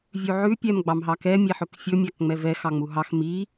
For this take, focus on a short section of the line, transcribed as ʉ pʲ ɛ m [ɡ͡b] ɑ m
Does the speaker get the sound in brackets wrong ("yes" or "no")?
no